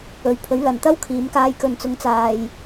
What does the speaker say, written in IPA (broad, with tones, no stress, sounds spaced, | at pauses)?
ɵ˨ ɥ pʰ ɵ˨˥ ɥ l ɐ˨ n t̪ ɐ˥ w kʰ iː˨˧ m k aː˧ j k ɵ˨ n t͡s ʊ˨˧ ŋ t͡s aː˨ j